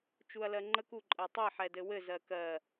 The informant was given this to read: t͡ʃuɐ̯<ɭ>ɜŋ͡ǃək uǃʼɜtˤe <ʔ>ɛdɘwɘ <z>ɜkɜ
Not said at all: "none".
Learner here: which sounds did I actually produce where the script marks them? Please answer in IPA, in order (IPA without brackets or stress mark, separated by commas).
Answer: l, ħ, z